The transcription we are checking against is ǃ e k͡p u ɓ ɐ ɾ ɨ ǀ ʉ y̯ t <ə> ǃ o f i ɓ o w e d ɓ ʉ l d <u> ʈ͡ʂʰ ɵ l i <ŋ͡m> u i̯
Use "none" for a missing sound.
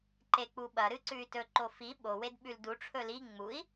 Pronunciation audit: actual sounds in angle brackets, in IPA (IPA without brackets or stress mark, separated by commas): ɵ, u, ŋ͡m